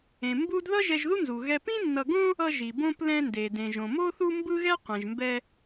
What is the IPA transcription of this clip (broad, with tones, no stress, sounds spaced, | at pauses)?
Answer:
ẽ˩ m b u˥ d ð ʌ˥ ʒ ɛ˧ ʒ ð u˥ n z u˩ ɣ ɛ˧ p ĩ˥ nː ʌ˧ ɡ õ˥ | ʌ˧ ʒ i˩ b õ˧ p l ɛ̃˧ n d e˩ d ẽ˩ ʒ õ˩ m o˥ θ u˥ m b ɯ˥ ɣ ɛ˥ qʷ ɛ̃˩ ʒ m b ɛ˧